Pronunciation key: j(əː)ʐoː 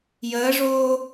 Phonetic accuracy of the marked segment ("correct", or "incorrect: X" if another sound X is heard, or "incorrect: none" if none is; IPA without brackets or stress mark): correct